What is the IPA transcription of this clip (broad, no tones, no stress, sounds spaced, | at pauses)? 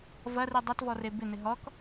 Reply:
v ɐ r i dˤ ɐ t v ɔ r e b ɪ n̪ ɪ ɦ ɔ k